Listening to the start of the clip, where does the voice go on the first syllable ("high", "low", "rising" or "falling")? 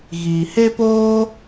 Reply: low